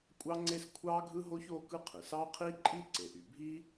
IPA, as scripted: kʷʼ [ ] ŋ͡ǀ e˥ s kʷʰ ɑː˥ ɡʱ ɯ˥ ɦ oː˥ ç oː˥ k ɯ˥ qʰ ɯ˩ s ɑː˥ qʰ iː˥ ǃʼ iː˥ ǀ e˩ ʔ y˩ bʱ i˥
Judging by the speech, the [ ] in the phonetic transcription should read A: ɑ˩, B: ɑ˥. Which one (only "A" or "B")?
B